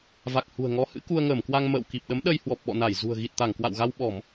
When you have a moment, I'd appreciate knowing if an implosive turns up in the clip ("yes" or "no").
yes